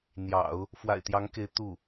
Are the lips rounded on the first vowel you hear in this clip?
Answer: no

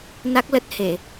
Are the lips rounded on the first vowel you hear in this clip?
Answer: no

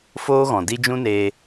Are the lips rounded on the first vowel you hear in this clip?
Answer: yes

